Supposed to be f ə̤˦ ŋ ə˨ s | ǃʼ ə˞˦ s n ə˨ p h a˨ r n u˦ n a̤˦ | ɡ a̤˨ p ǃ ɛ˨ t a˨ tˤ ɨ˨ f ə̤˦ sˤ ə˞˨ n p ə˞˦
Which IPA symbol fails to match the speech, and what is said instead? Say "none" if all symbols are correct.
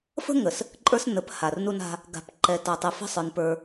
none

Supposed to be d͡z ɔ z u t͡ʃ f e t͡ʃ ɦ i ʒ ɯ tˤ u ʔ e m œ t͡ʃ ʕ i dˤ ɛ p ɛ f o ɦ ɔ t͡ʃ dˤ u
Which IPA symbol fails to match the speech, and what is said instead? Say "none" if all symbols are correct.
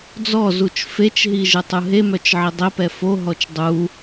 ʔ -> ɦ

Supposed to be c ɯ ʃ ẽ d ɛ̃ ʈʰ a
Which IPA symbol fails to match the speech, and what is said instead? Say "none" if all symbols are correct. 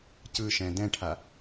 ẽ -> ɛ̃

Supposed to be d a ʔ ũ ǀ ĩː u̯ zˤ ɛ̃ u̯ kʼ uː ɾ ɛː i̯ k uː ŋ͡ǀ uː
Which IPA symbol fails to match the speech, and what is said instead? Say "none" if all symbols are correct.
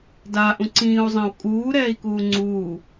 none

